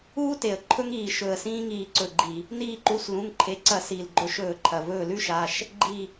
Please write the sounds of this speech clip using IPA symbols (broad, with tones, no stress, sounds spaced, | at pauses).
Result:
uː˥ t e˩ ə̯ ǃʰ ɵ˥ ŋ iː˧˩ ʃ ɵ˧˩ ə̯ s ĩː˥ ŋ iː˧˩ ǀ ɵ˧˩ ɡ͡ǃ i˧˩˧ | n iː˧˩ ǃ u˩˧˩ s l ũ˩˧˩ ŋ ǃʰ e˩˧˩ ǀ ɐ˧˩˧ s iː˩ l ɡ͡ǃ ɵ˧˩ ʃ ɵː˧˩˧ ǃʰ ɐ˩ v ɵː˧˩ l ʉ˥ ʃ a˩˧˩ ʃ | ɡ͡ǃ i˧˩